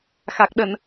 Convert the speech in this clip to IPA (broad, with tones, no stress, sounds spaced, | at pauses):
x a˨˩ k̚ ɗ ə˧˩˨ n